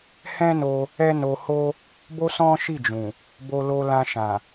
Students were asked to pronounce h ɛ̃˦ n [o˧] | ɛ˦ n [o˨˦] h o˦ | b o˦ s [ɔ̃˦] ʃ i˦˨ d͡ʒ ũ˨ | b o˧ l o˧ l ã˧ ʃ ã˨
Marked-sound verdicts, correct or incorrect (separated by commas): correct, incorrect, correct